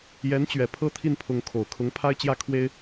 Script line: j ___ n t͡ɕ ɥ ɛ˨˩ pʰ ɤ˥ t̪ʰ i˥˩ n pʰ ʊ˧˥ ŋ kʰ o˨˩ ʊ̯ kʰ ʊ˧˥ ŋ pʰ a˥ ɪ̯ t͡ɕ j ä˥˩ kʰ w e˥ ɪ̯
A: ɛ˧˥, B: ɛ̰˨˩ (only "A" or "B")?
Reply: A